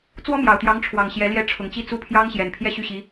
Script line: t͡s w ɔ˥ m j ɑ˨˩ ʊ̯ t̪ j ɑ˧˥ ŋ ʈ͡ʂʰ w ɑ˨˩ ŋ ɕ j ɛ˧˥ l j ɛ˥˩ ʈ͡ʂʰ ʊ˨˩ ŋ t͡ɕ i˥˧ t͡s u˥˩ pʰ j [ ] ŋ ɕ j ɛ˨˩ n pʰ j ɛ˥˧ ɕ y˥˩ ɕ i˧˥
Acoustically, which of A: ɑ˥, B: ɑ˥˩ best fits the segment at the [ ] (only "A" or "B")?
A